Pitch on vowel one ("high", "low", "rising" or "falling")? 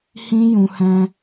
high